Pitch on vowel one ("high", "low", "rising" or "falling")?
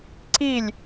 falling